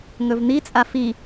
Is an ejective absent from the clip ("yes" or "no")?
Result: no